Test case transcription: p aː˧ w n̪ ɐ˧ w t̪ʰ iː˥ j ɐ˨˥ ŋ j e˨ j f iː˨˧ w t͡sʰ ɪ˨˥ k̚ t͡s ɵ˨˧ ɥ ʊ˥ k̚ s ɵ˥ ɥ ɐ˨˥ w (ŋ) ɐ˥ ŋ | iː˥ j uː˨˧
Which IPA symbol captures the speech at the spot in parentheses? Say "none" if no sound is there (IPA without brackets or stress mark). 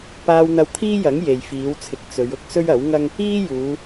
ŋ